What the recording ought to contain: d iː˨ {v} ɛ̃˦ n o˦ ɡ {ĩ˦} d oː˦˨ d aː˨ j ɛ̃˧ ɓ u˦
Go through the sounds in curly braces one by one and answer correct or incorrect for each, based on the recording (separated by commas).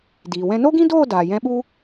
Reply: incorrect, correct